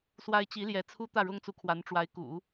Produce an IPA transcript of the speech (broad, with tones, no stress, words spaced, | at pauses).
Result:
swa˥ɪ̯ t͡ɕi˧˥ljɛ˧˥t͡sʰu˥ t̪ä˥˩ɻʊ˥ŋt͡su˧˥ kʰwa˧˥nʈ͡ʂwa˧˥ɪ̯kṵ˨˩˦